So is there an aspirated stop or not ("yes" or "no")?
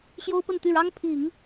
yes